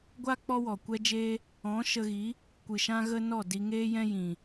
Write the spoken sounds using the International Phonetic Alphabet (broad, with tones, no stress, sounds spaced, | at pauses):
ɡʷ a˦ k͡p ɔ˦ w ɔ˨ kʷ ɛ˦ d͡ʒ eː˦ | ɔ̃˨˦ ʃ ə˧ ɣ i˨˦ | kʷ ɨ˨ ʃ ã˦ ɣ ə˦ n ɔ˦˨ d i˧ ŋ eː˦ j ɛ̃˦ j ĩ˨